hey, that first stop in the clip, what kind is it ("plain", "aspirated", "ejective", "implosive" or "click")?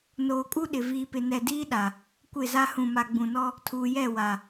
ejective